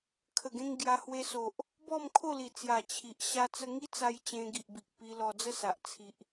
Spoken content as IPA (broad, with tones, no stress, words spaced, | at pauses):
kʰə˨˩ɡẽ˧ŋ ɡja˧hwe˧so˨ʔ | bɔ˥˧mkʰo˥˧ li˨˩ t͡sja˨˩ t͡ɕʰi˨ʔ ɕa˦t͡sə˦ ŋi˦t͡sa˧j t͡ɕẽ˧ ɡi˨ʔbi˨k̚ pi˧lɔ˧d͡zə˥˧sa˨ʔ t͡sʰi˨ʔ